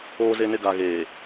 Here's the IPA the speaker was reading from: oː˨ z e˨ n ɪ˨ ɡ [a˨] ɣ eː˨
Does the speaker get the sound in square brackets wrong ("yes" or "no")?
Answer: no